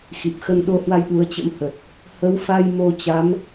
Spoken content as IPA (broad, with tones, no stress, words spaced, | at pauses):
xi˨˩p̚xə˧nɗo˧hwa˧j ɗu˨˦ə̯t͡ɕə̰˧˥mhə˨˩t̚ | hə˨˦wfa˧j mo˧t͡ɕa˨˦m